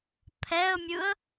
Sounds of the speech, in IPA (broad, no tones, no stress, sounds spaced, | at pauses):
pʰ ɛ ə̯ mʲ ɯ ə̯